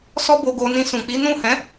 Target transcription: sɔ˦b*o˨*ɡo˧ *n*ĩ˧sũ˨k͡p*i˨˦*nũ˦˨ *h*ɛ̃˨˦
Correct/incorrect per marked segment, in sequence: incorrect: o˧, correct, correct, correct

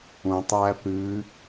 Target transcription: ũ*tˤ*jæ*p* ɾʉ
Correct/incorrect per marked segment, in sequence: correct, correct

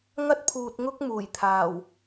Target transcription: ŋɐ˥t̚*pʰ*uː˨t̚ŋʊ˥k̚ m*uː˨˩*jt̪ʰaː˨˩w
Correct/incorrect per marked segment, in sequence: correct, correct

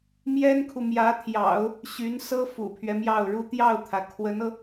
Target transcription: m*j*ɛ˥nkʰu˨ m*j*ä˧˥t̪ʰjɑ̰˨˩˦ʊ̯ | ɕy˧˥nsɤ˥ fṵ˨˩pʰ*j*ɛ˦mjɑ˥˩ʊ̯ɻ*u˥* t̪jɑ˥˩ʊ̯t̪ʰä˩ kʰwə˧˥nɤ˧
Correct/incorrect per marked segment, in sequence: correct, correct, incorrect: ɥ, correct

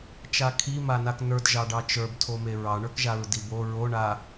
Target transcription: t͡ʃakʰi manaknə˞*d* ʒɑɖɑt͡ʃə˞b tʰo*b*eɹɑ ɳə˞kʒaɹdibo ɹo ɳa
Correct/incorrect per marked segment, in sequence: correct, incorrect: m

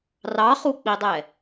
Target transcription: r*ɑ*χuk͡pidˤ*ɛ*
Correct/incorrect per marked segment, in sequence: correct, correct

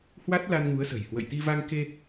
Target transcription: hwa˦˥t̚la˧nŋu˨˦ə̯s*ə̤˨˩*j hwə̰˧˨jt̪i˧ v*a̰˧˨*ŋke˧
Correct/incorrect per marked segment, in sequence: correct, incorrect: a˧

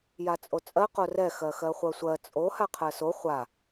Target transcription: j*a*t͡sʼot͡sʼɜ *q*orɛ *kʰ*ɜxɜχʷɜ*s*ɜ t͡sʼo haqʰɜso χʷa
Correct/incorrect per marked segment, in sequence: correct, correct, incorrect: x, incorrect: sʷ

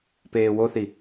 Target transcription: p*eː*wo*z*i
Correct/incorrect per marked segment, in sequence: correct, incorrect: θ

